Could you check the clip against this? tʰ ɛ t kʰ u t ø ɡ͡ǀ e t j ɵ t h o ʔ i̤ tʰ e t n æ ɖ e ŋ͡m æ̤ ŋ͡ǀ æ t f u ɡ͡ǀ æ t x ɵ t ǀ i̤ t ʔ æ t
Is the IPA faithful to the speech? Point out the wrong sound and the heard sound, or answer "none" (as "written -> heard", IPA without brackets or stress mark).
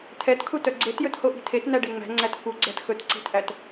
ø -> œ